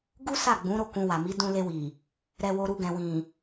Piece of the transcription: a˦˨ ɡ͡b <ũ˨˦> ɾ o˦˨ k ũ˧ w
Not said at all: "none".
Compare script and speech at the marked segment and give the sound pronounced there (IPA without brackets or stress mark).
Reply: ũ˨˦